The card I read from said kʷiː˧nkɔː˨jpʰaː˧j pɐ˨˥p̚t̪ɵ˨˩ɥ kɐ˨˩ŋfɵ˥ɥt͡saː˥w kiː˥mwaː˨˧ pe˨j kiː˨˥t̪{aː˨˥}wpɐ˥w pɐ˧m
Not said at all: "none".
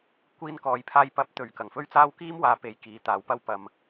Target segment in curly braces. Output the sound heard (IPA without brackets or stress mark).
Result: aː˨˥